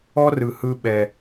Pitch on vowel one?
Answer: high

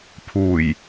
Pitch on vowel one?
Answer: low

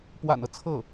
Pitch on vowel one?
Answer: low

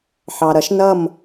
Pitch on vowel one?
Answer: low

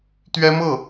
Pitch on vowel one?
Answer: high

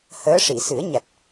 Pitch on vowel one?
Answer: rising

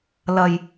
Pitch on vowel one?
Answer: low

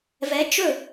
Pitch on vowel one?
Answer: rising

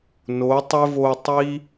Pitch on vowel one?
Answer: rising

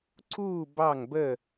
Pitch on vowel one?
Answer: falling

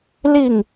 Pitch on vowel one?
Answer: falling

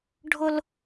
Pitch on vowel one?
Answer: high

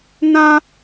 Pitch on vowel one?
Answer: high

